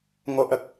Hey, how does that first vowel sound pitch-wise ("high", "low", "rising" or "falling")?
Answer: low